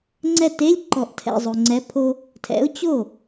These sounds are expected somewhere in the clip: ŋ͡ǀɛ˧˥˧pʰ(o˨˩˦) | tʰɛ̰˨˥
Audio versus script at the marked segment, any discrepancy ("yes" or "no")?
yes